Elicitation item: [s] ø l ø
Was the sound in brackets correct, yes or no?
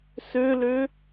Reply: yes